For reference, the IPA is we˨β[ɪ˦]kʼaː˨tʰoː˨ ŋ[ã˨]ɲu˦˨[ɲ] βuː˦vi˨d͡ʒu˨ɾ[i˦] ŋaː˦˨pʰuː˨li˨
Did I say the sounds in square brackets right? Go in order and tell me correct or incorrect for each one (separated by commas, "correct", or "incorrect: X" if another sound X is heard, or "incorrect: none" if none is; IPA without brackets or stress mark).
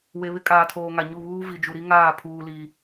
correct, incorrect: a˨, incorrect: none, correct